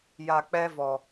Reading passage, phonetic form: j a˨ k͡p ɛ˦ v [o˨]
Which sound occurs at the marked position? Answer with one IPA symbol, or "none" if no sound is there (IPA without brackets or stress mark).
ɔ˨